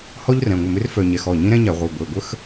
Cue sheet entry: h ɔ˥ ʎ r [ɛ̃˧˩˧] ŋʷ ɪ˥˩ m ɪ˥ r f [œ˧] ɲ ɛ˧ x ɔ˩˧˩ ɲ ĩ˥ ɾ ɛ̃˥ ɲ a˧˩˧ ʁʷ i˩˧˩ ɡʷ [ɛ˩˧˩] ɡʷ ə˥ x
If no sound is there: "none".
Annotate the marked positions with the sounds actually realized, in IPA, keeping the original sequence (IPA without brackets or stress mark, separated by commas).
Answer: ɛ̃˩˧˩, œ˧, e˩˧˩